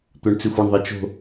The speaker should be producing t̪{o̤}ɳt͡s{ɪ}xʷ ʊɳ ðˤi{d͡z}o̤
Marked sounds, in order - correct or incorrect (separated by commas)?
incorrect, correct, incorrect